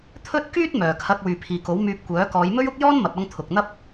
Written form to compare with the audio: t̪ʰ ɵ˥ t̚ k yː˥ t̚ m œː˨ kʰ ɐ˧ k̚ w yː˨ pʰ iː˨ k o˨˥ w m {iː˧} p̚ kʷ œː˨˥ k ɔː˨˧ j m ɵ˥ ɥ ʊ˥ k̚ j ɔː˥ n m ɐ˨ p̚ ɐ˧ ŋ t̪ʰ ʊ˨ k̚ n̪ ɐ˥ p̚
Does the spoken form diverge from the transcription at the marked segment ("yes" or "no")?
yes